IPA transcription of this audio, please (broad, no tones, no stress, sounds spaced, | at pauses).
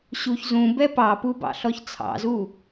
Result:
ɕ u ç z ũ b ɛ p ɑ p u b ɑ̰ ɬ ɔ ç t͡sʰ ɑ̰ z u